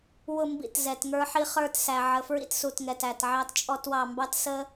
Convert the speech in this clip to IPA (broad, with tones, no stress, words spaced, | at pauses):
wʊ˦˨mbḭ˦˨t zɛ˨tŋə˞˦ħi˦ χə˞˦˨tsæ˨ ʕə˨ fɹḭ˦tsu˨tŋɛ˨tæ˨t ʕɑ˦tt͡ʃʼɔ˦twɑ˦˨ mbɑ˦tsə˦